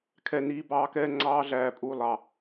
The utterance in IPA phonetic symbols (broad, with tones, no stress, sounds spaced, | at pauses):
kʰ ɛ˦˨ n iː˦ b ɑː˦ k ɛː˦ ŋ͡ǀ ɑː˦ ɮ æː˨ pʼ uː˨ lˠ ɑ˨